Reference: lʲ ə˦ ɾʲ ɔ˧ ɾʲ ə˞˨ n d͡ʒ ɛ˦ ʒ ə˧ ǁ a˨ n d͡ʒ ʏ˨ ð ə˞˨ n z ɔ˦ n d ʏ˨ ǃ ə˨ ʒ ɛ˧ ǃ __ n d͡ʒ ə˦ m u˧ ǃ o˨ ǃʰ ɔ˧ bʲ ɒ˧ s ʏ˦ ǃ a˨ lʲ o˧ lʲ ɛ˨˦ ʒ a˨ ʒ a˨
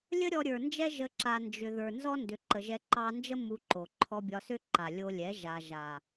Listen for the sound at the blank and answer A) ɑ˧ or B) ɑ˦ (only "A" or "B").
A